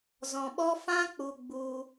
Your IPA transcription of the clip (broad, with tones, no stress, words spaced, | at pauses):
zɔ̃˧ɓɔ˦ fã˦k͡pu˧ɡ͡bu˧